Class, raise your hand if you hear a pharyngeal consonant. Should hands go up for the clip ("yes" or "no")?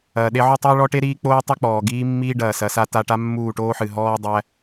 yes